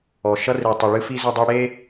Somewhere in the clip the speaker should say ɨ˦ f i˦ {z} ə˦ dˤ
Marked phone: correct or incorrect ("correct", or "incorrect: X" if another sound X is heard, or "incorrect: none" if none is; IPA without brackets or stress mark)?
correct